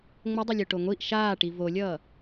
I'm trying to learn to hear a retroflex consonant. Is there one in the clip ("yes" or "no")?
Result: yes